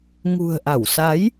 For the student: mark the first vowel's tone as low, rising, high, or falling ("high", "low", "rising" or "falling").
low